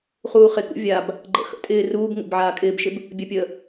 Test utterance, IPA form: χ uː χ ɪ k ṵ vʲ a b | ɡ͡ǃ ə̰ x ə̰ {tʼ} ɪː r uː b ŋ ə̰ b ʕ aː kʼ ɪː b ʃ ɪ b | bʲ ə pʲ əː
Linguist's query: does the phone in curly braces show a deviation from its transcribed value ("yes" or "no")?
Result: no